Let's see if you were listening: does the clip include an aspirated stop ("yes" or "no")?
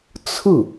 yes